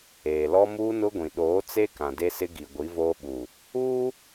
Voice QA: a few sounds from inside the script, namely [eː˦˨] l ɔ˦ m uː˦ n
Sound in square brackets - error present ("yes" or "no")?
yes